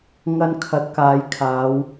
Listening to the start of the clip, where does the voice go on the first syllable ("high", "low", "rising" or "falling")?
high